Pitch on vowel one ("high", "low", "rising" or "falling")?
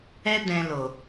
high